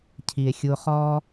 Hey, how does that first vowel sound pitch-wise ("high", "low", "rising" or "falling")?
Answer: low